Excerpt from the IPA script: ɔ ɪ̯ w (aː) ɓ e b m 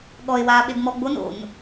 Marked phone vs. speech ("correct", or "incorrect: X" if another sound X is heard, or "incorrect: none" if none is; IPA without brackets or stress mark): correct